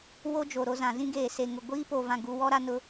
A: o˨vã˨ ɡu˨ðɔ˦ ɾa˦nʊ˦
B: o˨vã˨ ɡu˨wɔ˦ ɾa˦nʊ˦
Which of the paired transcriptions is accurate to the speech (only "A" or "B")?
B